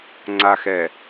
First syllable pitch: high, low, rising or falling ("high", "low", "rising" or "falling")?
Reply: low